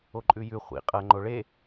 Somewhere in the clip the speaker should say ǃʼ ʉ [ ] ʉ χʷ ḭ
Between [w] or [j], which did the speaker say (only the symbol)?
j